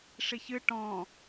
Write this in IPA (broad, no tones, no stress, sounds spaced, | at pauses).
ʂ i ç ɨ ʈ ɔ̃